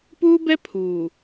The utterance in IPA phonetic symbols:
p uː˦ b ɛ˦ pʰ uː˨

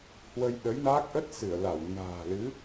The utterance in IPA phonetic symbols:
h w ə˧ j ɗ ə˨˦ j n aː˦˥ k̚ ʔ ə˦˥ t̚ s ɨ˧˩ ə̯ l a˧˩ w n a̤ː˨˩ l ɨ˨˦

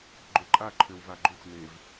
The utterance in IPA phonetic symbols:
ɡ͡ǃ ø ǃʼ a ǃʰ ø w v a ɡ͡ǃ u xʷ n e v

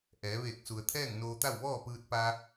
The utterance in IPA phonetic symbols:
ʔ ɛː˩˧ ʋ eː˧˩ k̚ s u˩ ə̯ t̪ʰ ɛː˥˨ ŋ n oː˧ t̪ a˥˨ w ʋ ɔː˥˨ p ɯː˧ t̚ p a˧

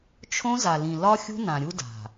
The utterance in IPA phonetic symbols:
t͡ʃʰ õ˦ z a˨ l ĩ˨ l ɒ˦ xʲ ṳ˦ n ã˨ ɾʲ u˦ d a̤˨

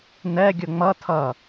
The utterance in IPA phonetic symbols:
n ɛ ɡʲ ʊ ŋ͡m ʌ tʰ ʌ

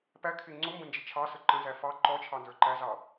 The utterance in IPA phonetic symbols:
p æ kʰ ɪ ŋ͡ǀ ʊ m b ə̃ n d͡ʒ ɪ t͡ʃʰ ɑ s ə ǃ ə̃ z æ f ɑ ǃ ɔ t͡ʃʰ ɑ n z ə˞ ǃ æ z ɑ

